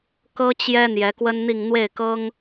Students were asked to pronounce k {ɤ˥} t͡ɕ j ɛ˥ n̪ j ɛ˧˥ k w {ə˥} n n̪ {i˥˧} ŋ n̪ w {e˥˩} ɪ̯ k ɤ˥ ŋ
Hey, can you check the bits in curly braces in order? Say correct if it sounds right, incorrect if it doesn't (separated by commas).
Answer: correct, correct, correct, correct